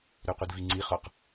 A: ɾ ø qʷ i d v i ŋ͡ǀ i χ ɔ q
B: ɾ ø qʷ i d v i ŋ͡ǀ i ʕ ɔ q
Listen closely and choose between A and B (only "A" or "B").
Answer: A